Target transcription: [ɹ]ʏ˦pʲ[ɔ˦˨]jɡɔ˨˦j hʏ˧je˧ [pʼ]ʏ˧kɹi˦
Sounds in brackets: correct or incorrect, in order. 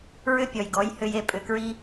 correct, incorrect, correct

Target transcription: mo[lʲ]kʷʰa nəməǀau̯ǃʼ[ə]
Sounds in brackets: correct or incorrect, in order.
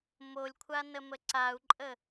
correct, correct

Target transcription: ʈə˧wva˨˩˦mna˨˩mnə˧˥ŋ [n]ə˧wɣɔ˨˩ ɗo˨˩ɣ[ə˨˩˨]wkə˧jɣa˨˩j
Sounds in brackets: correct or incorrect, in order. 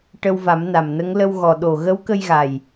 incorrect, incorrect

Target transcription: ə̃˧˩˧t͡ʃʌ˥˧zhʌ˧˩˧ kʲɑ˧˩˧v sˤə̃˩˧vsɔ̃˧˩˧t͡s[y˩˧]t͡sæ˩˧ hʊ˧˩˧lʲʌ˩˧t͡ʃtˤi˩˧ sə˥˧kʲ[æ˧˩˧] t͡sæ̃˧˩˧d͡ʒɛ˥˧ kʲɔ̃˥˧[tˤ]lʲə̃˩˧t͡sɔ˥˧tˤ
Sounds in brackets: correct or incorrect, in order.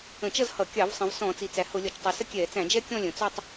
incorrect, incorrect, incorrect

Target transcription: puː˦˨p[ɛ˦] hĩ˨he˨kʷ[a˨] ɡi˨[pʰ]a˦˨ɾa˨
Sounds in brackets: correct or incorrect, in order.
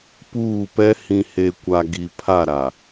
correct, correct, correct

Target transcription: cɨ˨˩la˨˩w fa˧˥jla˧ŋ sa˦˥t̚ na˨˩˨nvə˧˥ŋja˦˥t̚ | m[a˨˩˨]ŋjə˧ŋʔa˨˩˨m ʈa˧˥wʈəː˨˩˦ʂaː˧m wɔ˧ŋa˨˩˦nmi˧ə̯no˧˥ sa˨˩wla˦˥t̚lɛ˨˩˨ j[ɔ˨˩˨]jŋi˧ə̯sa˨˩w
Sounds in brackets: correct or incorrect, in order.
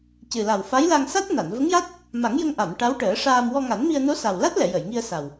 incorrect, incorrect

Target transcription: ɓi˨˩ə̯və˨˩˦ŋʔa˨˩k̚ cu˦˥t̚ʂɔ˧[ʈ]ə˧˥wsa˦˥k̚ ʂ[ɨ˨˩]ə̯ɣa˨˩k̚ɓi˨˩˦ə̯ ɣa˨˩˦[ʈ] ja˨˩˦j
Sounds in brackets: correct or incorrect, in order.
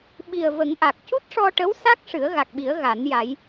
correct, incorrect, incorrect

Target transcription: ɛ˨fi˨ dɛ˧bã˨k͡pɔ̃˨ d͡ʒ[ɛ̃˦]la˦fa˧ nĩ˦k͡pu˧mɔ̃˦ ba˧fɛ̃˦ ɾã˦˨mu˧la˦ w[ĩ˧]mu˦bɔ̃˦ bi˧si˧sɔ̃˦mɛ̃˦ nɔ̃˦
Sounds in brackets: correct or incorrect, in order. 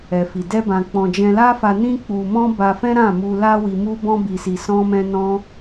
incorrect, incorrect

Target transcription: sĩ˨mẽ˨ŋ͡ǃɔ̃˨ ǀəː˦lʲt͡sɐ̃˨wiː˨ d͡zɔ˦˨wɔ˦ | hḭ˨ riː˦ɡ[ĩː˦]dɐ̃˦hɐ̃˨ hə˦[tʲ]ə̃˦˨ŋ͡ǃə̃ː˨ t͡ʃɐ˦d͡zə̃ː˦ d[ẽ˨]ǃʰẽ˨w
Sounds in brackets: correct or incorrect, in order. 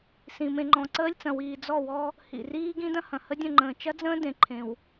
incorrect, incorrect, correct

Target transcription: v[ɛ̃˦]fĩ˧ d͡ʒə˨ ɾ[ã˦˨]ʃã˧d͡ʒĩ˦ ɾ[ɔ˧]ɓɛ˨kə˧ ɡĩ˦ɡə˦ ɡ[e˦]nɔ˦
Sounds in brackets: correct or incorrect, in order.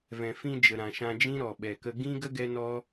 incorrect, incorrect, incorrect, incorrect

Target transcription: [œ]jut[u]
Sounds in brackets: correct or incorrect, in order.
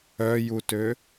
correct, incorrect

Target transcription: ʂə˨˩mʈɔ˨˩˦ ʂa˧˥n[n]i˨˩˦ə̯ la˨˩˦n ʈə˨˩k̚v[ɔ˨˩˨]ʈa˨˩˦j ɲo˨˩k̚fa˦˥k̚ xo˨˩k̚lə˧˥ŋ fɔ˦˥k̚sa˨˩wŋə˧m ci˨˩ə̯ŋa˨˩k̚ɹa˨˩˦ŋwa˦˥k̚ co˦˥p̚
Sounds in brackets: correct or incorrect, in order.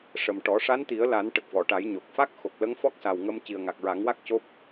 incorrect, correct

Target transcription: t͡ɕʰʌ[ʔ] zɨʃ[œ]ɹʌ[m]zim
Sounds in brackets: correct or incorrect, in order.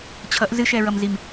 correct, incorrect, correct

